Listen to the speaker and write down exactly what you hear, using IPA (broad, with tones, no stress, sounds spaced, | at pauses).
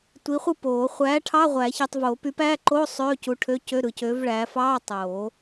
tʷ i˨˥ χʷ ɯ˥˧ p oː˨˩˦ χʷ æː˨˥ ʈʰ ɑ˧˥˧ ʁʷ æ˨˩˦ ç i˨ tˤ v oː˨˩˦ p y˨˥ p æː˧˥˧ ǃ oː˧˥˧ sˤ øː˧˥˧ c u˨˥ ʈʰ ø˧˥˧ c ø˧˥˧ ɾ ɯ˨ c øː˨˥ v ɭ æː˨˥ f ɑː˧˥˧ tˤ oː˨˩˦